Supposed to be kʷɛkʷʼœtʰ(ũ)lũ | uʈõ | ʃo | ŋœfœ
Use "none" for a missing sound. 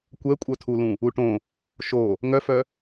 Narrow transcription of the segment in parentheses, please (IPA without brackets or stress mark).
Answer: u